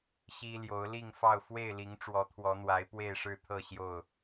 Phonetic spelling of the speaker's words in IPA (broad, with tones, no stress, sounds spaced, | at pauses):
ɕ i˦ l j o˨˦ ʊ̯ l i˥˨ ŋ f ɑ˥˨ ʊ̯ f w e˥˨ ɪ̯ l i˨˦ ŋ ʈ͡ʂ w ɔ˨˦ t̪ʰ w ɔ˨˦ n̪ w a˨˦ ɪ̯ p w e˥˨ ɪ̯ ʂ ɻ̩˥˨ t̪ʰ ɤ˥˨ ɕ j o˥˨ ʊ̯